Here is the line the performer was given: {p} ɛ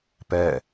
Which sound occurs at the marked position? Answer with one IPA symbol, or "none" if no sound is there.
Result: p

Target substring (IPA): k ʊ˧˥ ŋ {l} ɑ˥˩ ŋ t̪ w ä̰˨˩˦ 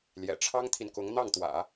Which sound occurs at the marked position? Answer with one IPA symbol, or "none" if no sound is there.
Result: n̪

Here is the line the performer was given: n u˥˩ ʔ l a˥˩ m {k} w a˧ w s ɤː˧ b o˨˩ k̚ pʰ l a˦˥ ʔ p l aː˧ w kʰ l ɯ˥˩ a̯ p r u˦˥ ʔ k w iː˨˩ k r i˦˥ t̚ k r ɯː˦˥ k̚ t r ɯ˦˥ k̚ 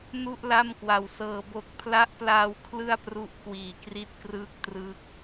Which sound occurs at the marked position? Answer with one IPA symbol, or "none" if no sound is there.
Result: k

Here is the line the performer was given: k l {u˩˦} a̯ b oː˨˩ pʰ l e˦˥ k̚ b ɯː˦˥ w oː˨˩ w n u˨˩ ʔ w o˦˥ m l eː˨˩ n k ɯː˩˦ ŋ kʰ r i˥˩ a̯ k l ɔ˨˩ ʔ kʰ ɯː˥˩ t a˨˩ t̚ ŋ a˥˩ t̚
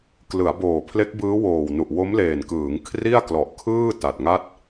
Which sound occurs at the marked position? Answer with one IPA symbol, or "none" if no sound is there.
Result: ɯ˩˦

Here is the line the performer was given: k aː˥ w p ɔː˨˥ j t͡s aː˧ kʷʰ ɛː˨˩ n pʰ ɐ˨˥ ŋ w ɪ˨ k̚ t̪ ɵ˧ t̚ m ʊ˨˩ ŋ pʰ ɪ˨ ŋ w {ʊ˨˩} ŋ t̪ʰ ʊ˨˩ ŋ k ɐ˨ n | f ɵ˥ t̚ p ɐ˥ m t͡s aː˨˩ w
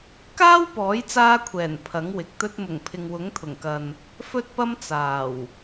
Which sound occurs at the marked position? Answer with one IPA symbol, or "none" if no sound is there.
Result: ʊ˨˥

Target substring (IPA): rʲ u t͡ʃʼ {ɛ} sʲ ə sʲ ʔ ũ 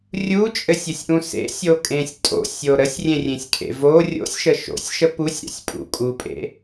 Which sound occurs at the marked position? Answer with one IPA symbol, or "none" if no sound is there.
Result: ɘ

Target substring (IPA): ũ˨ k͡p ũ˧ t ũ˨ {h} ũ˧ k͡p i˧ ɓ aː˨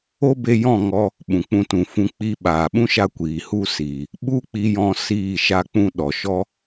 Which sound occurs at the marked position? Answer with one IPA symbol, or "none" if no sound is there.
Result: f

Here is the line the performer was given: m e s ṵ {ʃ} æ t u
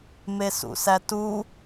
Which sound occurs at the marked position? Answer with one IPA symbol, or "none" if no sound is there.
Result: s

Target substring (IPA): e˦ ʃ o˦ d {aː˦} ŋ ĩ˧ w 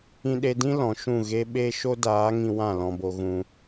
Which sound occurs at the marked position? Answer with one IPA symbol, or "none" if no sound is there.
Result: aː˨˦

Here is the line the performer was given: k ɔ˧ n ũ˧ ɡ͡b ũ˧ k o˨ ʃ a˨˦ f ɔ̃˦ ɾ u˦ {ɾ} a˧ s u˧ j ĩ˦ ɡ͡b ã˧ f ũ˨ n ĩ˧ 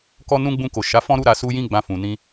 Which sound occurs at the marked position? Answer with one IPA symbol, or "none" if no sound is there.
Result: ɾ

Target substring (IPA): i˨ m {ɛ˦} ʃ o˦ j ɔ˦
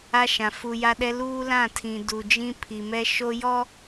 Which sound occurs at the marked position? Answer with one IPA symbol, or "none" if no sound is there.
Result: ɛ˦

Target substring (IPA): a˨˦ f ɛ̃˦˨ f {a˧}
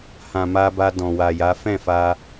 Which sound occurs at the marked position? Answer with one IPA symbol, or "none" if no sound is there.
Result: a˧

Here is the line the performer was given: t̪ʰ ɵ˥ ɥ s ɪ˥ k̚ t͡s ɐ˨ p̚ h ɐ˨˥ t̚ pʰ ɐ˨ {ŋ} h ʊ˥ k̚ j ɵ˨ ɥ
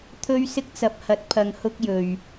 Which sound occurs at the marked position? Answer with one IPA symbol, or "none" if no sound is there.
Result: ŋ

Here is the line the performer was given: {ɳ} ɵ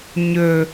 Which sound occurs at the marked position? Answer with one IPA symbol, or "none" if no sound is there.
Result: ɲ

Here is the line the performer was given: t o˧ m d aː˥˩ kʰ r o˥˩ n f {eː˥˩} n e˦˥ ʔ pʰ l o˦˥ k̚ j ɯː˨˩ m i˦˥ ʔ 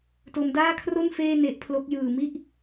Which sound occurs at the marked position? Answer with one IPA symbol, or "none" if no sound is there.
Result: eː˥˩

